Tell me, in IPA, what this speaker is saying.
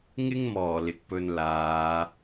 ŋɪ˥ŋmɔː˨˩ lɪ˨k̚pɵ˧n laː˨˧

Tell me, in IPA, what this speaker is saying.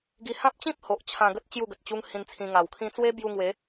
ɡi˧ hã˦p̚t͡ɕĩ˦p̚ho˨ʔ t͡ɕʰã˧ɡə˦t̚ t͡ɕju˥˧ɡə˨t̚t͡ɕu˦ŋ hĩ˧nt͡sʰĩ˧ŋa˨˩wkʰĩ˦ t͡swe˦bju˧ŋwe˨˦

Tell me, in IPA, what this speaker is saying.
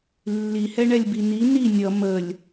lːihɛɳɛlʲbi ni ni nʲʌ məlʲ

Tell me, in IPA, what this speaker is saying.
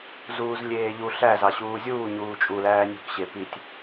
zuːzlʲeːʎu ɬæ zɑɕuːzʲuː ɲuːt͡ʃʼulæː nʲṳk ɕepitʲ

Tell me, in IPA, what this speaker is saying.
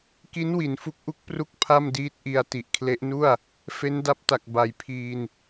ki˦˥nwi˩˦n fu˦˥k̚ʔu˥˩k̚pru˥˩k̚ pʰa˥˩m diː˦˥t̚ʔi˧a̯ ti˨˩ʔkʰle˦˥ʔnu˥˩a̯ | fe˦˥nda˦˥p̚ta˨˩k̚ ba˨˩jpʰiː˧n

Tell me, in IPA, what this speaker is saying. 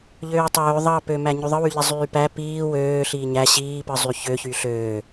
ʎøːtˤøː ðˤɑpømæ ɲyðˤɯwyʎi zˤyːpæ piː wøː ɬiɲæ ɕiːpɯ zˤyçøçy ɬøː

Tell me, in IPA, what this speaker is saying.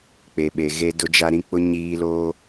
k͡pe˨ɓe˨ ɣe˦dʊ˦d͡ʒa˦ ɾĩ˦k͡pʊ˦ ɲiː˦loː˦

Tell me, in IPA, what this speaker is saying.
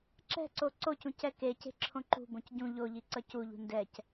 ǁɛ̤ǀo ǀocũc ɛkece̤ ǁʰõǃṳbõc ɟũ ʎoʎi ǀʌcuʎṳ ndɛc

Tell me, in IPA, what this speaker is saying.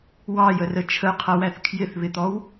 wɑjərə t͡ʃʰəqʰʌwæθ kʰjɪθβɪt̪ɔw

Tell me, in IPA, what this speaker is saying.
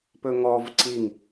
pɵŋɔv ǀiŋ

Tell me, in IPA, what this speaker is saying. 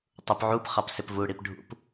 tˤupʕup χɑpsɪpvuɽip ɖʱṵp

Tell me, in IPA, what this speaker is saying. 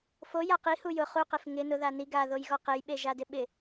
foja qihu jʊ χuqef ŋɪ nʊða ni ɡaðojɣɔ qejɓeʒadɪ ɓɪ

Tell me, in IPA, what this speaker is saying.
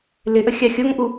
lɪʔəxʲɑ xʲoŋʔu

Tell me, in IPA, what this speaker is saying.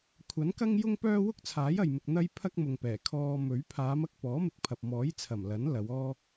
kʷʰɐ˨˥nkɐ˥ŋjʊ˥ŋpœː˥ wʊ˥k̚t͡sʰaː˨˥jɐ˨jmɪ˨k̚ n̪ɐ˥jpʰɐ˥k̚mʊ˨ŋpɛː˨˩ kʰɔː˧mɵ˨˥ɥ pʰaː˨˧mɐ˧k̚ pɔː˨˥mɪ˨k̚pʰɐ˨p̚ mɔː˨˥j t͡sʰɐ˨˩m lɐ˨˥n lɐ˨˧w ɔː˥

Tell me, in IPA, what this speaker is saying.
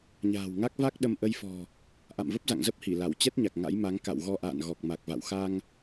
ɲa̤ː˨˩wŋa˦˥k̚ va˦˥k̚ ɗə˧mʔə˧jfɔ̤˨˩ | ʔa̰˧˨mvə˦˥p̚ za̰˧˨ŋzə˦˥p̚ hi˧˩la˧˩w t͡ɕɛ˦˥t̚ɲa˨˩k̚ ŋa̰˧˥jma˨˦ŋ ka̰˧˨wɣɔ˧ʔa̰ː˧˨n ɣɔ˨˩k̚ma˨˩k̚va̰˧˨w xa˧ŋ

